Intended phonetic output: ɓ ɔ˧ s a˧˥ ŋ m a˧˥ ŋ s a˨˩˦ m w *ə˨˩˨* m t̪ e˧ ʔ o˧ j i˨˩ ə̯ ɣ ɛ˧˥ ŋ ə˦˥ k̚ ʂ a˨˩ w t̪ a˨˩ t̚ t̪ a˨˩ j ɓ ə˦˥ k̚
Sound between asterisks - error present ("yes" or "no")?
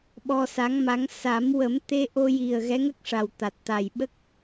yes